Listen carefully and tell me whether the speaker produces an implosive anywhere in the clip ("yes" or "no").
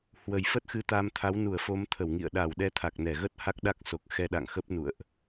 yes